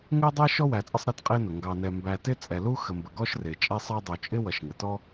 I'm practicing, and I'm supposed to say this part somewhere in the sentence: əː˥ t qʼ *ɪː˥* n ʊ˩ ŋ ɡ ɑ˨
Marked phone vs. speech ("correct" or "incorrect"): correct